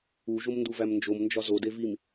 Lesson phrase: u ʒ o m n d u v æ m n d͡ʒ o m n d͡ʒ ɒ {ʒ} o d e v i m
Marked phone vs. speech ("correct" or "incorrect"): incorrect